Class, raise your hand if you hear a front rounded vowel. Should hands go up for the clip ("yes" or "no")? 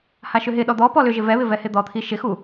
yes